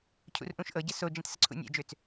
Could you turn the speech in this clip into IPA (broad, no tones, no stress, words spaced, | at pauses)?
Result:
cʰṵrʔũʃʔɤɟə sod͡ʒĩt səǀʰṵnʲɛ̰d͡ʒøt͡s